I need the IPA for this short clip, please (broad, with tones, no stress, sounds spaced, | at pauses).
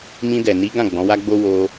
m ĩ˧ d ɛ˨ n i˨˦ ɡ ã˦˨ ɡ͡b ɔ̃˨˦ w a˦ ɡ͡b o˦ w o˧